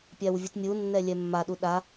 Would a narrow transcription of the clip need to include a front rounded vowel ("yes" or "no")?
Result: no